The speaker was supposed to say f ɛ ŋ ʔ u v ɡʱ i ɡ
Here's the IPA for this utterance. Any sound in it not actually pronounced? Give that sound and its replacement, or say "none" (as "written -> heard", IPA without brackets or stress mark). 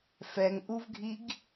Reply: none